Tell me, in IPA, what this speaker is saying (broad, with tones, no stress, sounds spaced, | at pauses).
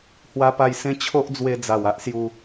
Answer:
h w a˧ p a˧ j s ẽ˧ t͡ɕʰ o˦ ʔ d͡z w e˧ d͡z a˨˩ w a˦ ʔ s j u˧